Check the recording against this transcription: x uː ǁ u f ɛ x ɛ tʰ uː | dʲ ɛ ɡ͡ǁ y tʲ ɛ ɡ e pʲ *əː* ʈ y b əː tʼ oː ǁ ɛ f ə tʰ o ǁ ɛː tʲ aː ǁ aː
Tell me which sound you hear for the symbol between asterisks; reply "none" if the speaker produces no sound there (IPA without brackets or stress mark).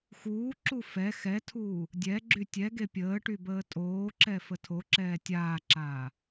əː